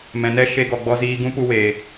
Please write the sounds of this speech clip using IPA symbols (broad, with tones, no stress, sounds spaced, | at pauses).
m ɛ̃˨ n ɛ˦ ʃ e˧ ɡ ɔ˨ ɡ͡b ɔ˧ z iː˧ ɡ ũ˦ p u˧ w eː˨